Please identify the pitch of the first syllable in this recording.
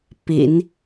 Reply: low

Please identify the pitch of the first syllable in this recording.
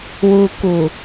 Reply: low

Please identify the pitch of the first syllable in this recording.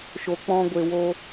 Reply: low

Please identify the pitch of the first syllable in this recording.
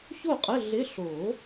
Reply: falling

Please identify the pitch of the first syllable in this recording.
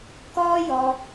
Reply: high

